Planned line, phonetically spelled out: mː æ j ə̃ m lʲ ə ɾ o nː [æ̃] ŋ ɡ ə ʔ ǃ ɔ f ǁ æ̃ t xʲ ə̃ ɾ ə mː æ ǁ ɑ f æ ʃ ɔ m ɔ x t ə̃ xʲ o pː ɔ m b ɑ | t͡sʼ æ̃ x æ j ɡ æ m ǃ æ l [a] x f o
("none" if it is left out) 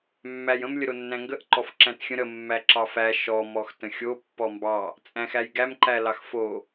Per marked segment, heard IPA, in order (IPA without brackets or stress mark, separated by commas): æ̃, ɑ